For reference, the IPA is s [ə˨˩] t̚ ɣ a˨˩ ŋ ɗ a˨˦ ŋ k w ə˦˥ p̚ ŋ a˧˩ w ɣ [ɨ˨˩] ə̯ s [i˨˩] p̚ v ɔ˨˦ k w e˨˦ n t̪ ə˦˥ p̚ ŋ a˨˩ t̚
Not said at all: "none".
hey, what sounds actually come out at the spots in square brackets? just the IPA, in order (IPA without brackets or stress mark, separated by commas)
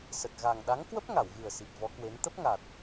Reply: ə˨˩, ɨ˨˩, i˨˩